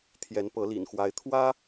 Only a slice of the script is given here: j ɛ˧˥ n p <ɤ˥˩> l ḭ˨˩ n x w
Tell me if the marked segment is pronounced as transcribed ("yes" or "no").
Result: no